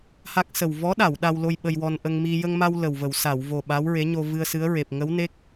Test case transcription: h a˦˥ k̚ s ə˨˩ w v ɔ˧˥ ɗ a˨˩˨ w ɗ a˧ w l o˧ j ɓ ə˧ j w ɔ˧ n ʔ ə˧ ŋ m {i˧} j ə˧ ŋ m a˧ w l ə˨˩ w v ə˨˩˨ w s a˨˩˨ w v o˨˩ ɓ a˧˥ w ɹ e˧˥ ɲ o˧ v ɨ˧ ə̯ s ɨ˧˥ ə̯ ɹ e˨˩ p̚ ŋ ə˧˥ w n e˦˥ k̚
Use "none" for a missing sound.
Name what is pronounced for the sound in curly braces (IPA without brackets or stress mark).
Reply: i˧